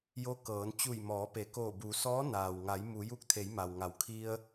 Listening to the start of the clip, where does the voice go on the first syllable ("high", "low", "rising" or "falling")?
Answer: rising